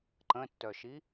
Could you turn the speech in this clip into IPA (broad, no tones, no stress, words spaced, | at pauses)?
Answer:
ǃə̃tːœʃi